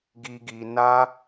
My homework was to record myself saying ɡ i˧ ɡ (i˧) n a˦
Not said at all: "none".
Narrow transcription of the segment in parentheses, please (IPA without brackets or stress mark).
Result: i˧